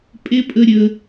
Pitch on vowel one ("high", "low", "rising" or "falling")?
high